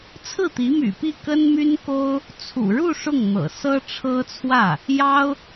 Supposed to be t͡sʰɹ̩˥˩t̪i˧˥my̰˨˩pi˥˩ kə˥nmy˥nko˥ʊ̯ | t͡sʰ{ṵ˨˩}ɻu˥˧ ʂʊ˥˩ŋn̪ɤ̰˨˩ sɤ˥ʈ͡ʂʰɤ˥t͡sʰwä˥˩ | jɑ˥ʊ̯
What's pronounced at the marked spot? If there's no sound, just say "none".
ṵ˨˩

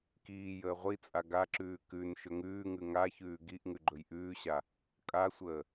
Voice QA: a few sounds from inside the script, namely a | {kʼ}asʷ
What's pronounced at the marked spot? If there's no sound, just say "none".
kʼ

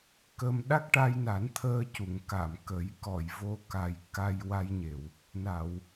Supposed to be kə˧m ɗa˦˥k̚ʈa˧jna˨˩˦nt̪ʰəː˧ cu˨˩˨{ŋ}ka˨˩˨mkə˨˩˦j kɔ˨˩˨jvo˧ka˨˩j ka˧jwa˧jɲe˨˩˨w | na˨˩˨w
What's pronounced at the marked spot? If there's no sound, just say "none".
ŋ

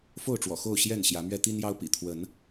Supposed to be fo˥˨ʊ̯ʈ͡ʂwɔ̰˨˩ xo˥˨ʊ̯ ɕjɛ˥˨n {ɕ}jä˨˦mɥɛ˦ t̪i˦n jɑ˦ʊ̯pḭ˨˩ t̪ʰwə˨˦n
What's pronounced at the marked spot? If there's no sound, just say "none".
ɕ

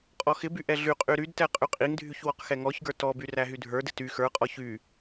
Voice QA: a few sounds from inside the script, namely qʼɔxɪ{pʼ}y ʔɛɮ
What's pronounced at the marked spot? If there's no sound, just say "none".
b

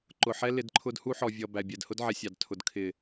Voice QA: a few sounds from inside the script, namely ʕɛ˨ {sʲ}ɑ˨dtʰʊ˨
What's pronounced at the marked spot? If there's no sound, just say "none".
sʲ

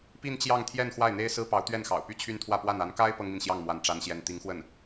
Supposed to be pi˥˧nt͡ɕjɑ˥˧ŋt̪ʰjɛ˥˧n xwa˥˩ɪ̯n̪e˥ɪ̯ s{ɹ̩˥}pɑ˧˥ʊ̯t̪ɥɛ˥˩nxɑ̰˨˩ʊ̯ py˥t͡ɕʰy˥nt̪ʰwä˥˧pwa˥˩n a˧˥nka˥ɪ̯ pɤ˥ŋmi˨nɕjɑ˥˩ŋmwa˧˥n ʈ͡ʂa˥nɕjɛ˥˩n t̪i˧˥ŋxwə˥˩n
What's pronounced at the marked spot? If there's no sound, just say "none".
ɹ̩˥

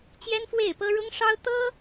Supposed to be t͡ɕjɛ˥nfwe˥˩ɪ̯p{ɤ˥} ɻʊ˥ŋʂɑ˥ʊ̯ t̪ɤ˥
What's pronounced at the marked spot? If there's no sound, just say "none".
ɤ˥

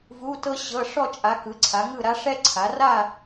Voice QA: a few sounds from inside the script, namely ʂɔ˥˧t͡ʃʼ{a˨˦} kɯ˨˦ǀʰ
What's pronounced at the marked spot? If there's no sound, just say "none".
a˨˦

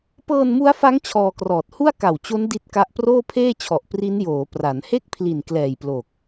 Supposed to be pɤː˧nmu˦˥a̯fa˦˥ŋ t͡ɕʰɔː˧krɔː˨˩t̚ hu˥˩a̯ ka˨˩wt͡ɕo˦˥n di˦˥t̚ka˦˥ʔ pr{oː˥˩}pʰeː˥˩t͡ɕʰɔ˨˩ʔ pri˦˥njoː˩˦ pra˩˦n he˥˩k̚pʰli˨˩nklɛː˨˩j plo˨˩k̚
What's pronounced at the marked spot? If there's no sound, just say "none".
oː˥˩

